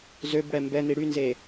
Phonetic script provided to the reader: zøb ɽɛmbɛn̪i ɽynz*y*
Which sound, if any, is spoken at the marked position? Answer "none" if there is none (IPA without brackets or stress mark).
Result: e